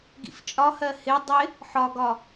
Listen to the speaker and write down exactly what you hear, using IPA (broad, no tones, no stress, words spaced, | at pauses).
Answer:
ɡḭft͡ʃʼɒhɜ hɪ dˤɪ | ħɒɡɒ